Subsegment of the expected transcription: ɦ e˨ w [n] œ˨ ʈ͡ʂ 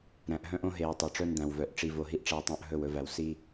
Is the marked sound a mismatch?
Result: yes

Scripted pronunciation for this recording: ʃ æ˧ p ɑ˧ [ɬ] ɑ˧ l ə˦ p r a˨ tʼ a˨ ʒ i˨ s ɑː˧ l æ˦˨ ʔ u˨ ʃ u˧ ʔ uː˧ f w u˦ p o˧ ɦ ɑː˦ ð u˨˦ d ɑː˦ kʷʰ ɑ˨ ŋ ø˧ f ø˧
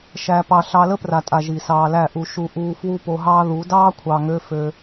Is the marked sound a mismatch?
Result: no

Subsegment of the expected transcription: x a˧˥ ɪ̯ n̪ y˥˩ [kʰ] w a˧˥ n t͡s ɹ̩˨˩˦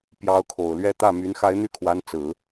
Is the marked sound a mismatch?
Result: no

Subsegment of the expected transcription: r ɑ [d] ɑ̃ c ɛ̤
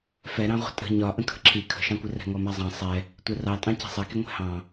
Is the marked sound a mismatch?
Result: yes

